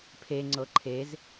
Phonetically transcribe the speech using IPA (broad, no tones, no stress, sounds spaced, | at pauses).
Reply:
pʰ e ŋ͡ǀ ɤ ǃʰ e z